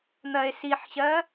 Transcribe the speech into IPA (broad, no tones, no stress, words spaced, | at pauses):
n̪ɜe̯siħɕɜ